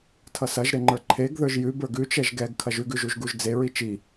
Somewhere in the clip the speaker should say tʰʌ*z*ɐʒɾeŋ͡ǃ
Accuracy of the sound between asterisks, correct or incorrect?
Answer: incorrect